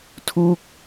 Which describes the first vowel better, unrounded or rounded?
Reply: rounded